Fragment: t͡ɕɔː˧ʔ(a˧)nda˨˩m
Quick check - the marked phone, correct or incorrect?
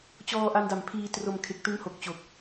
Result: correct